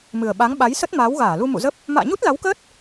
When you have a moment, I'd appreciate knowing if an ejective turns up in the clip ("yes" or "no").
no